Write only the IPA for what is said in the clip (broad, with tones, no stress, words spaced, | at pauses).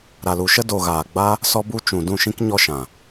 ɾa˨lu˨ʃə˦ do˨ ɣaː˨ɡ͡ba˦ | sɔ˦bu˦ t͡ʃũ˨ dũ˦˨ʃĩ˦k ɲɔ˦ʃã˨